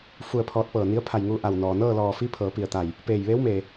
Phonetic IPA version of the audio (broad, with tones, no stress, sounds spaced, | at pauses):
f u˧ ə̯ pʰ ɔː˧˥ t̚ p ɤː˧˩ n i˧˥ ə̯ pʰ a˧˩ j ŋ uː˧ ʔ a˧˩ w n ɔː˩ n ɤː˥˨ l ɔː˩ f i˧˥ pʰ ɤː˩˧ p i˧˩ ə̯ t̪ a˧˩ j | p eː˧˩ j ʋ eː˧˥ w m eː˩